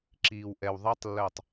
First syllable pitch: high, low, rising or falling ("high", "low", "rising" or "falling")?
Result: low